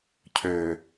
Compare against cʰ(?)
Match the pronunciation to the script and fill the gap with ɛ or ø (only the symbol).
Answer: ø